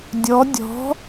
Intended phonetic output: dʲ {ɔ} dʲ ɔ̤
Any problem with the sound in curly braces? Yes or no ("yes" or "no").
no